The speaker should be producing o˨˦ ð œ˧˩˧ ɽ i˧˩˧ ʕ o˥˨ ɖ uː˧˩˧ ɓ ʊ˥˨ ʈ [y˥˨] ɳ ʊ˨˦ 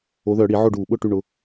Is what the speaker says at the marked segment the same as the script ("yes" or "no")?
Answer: yes